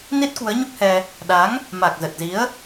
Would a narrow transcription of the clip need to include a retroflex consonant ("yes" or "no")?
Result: no